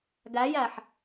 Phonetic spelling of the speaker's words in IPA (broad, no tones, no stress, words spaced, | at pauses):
ɡæjæħ